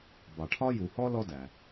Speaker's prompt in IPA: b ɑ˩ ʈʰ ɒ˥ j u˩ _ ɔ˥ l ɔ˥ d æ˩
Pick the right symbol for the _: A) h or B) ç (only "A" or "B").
A